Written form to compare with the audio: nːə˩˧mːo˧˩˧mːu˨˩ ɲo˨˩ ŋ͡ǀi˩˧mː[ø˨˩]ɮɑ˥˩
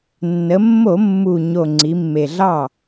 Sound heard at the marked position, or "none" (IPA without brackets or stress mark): e˨˩